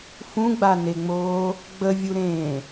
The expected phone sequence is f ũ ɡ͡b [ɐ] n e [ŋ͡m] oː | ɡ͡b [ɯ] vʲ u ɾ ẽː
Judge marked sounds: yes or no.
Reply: no, yes, no

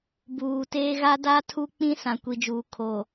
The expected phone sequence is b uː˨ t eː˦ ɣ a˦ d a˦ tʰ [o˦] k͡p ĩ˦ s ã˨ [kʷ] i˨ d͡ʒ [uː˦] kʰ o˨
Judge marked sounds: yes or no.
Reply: no, yes, no

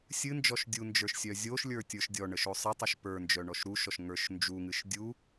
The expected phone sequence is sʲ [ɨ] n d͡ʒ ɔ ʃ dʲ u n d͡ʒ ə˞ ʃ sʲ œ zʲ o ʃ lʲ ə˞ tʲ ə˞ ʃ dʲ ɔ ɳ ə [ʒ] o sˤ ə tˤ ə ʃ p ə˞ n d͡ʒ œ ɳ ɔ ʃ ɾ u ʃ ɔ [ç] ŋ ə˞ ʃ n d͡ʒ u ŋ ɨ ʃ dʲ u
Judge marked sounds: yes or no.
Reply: yes, no, no

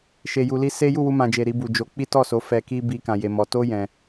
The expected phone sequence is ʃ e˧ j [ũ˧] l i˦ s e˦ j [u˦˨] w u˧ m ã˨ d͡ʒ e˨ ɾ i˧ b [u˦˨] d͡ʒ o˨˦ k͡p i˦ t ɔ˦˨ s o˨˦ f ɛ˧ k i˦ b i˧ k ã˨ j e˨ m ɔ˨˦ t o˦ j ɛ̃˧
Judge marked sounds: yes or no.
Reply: no, yes, no

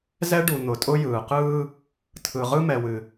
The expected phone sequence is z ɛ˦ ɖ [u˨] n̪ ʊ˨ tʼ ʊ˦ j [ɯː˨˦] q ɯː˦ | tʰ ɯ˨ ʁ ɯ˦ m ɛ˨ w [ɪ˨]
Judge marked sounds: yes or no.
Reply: yes, no, no

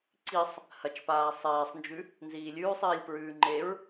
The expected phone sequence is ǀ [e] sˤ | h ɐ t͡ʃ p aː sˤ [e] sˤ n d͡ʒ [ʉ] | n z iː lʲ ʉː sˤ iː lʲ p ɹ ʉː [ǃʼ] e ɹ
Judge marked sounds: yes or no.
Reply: no, no, yes, no

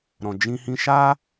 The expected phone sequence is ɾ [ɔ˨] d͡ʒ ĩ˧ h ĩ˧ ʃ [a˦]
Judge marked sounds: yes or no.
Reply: no, yes

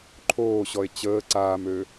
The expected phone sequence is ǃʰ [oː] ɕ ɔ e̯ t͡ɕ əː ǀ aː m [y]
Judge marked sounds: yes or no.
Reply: yes, no

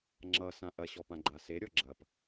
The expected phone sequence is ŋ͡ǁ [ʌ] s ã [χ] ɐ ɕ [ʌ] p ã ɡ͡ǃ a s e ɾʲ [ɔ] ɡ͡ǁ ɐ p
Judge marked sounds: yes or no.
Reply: yes, no, no, yes

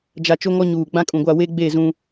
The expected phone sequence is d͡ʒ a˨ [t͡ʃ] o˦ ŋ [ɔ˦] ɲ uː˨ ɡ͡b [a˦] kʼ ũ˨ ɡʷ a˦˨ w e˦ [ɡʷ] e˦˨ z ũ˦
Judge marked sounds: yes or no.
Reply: yes, yes, no, no

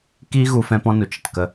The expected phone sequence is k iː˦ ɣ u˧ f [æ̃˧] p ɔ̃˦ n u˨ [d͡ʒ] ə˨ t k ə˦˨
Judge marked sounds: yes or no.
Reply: no, no

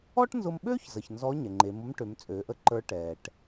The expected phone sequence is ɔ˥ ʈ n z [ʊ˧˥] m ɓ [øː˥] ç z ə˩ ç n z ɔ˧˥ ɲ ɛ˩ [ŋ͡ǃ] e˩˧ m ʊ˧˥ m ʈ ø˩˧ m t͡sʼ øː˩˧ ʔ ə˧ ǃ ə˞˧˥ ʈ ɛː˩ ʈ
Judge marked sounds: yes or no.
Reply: no, yes, yes

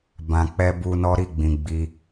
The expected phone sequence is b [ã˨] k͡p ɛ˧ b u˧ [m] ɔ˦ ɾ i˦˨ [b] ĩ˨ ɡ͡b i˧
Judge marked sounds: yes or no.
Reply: yes, no, no

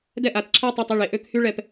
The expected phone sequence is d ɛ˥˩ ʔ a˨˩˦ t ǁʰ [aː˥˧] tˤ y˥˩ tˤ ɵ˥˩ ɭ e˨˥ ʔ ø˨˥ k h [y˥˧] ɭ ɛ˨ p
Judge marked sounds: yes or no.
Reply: yes, yes

